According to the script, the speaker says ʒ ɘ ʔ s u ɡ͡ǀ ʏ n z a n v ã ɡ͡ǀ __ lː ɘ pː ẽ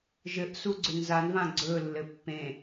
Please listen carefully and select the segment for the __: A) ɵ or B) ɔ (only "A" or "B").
A